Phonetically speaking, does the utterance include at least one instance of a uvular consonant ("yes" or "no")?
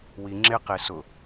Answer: yes